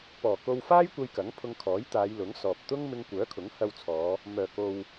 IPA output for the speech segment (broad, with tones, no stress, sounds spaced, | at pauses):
p ɔː˨˩ k o˧ w f aː˥ j kʷ ɐ˧ j k ɐ˨˥ ŋ pʰ ʊ˧ ŋ kʰ ɔː˨˥ j t̪ aː˨˧ j l ʊ˨˥ ŋ s ɔː˨ p̚ t̪ ʊ˥ ŋ m ɪ˧ ŋ kʷ œː˨˥ kʰ ʊ˨˥ ŋ h ɐ˧ w t͡sʰ ɔː˨˧ | m œː˨˩ k o˨ w